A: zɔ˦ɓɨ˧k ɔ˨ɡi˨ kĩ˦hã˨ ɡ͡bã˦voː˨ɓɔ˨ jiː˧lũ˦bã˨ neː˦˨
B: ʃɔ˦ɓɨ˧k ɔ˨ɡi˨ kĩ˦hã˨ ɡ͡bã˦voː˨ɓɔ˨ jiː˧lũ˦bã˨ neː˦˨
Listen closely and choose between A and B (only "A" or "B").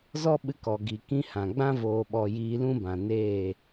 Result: A